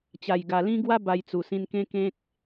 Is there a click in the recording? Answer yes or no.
no